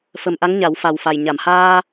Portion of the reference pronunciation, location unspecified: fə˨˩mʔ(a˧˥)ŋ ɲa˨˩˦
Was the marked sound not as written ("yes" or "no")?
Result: no